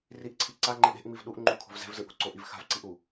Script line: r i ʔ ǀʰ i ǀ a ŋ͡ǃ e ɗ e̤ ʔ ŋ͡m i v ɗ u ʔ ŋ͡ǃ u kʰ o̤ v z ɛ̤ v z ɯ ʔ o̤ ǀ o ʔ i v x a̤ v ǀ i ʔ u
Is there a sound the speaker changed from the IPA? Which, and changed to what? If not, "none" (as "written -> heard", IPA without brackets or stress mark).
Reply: none